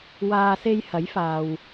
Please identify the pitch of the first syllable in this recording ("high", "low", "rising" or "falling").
low